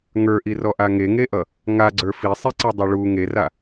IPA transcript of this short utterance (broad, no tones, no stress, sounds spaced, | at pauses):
ŋ ə˞ ʔ i r ɔ ʔ a ŋ e ŋ e ʔ ʌ | ŋ a ɡ͡ǀ ə˞ f i sˤ i ǀ a dˤ a ɭ u ŋ e r a